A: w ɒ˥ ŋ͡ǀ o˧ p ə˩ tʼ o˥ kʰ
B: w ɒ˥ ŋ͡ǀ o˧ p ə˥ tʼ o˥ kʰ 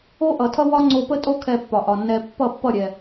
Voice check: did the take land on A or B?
B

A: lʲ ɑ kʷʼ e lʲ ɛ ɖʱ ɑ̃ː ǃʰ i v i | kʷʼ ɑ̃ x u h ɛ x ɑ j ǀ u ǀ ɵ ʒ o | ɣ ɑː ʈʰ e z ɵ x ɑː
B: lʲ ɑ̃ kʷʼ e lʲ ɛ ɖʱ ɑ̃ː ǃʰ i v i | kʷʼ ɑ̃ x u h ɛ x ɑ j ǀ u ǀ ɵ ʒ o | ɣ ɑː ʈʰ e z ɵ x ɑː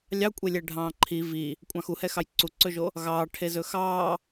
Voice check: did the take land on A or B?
A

